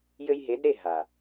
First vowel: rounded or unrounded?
unrounded